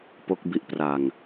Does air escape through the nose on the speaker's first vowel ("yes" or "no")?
no